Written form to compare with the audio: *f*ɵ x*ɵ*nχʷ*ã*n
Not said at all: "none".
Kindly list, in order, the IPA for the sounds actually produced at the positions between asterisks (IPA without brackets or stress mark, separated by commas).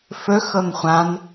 f, ɤ, ã